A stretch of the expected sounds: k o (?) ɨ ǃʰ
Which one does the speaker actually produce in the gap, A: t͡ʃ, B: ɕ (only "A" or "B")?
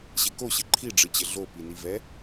B